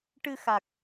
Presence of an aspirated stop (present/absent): absent